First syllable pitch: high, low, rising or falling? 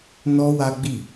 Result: high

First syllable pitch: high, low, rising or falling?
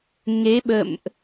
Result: rising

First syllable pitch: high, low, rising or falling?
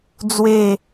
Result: falling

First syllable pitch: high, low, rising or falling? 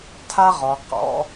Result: high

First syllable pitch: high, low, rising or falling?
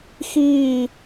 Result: falling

